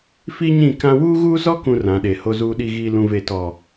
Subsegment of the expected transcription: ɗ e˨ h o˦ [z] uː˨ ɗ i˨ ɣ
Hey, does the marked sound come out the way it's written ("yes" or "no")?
yes